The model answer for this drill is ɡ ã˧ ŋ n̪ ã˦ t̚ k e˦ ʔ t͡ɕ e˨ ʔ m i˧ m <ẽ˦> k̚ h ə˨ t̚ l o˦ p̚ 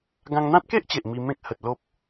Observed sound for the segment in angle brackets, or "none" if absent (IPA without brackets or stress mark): ẽ˦